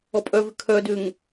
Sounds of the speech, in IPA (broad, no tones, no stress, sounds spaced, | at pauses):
ɔ pʼ œ v ʏ kʰ œ d ʏː ŋ